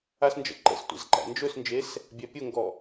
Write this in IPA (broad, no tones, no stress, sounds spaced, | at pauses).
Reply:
a s n d͡ʒ ə̰ ǃ ə̰ s tʷ ɛ̰ z ǃ æ̰ n d͡ʒ ɵ s n d͡ʒ e s | bʲ æ pʲ ʊ ŋ ɡ ɔ